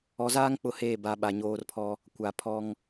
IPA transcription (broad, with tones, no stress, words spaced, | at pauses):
ɔ˨zaː˦ŋ k͡pʊ˦˨heː˦˨ ba˨˦ ɓa˨ɲoː˦rpʰɔ˦ | kʷa˨pʰɔ˦ŋ